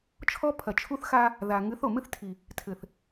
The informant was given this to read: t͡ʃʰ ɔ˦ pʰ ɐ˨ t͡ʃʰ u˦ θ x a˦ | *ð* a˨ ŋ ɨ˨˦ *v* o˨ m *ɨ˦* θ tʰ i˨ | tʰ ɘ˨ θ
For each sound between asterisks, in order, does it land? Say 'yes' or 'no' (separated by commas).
yes, no, yes